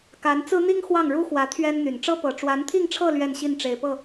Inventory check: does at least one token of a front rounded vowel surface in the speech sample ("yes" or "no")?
yes